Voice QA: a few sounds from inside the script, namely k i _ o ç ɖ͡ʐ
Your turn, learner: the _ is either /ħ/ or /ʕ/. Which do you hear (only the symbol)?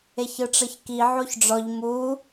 ʕ